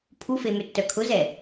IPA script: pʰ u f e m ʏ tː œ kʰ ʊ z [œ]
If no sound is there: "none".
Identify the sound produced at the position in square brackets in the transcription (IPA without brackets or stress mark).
ɛ